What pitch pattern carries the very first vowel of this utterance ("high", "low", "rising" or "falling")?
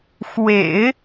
low